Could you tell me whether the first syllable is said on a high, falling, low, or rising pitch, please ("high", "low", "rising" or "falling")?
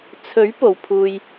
rising